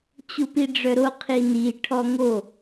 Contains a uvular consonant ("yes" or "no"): yes